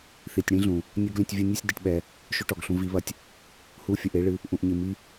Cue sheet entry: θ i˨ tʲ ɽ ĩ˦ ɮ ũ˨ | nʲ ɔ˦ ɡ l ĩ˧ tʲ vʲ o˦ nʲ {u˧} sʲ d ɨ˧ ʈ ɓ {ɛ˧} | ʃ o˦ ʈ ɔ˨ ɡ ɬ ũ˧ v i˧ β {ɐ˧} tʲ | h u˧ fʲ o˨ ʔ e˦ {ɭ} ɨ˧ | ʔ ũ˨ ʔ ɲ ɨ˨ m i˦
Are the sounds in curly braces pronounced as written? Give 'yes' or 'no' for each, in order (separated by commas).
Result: no, yes, yes, yes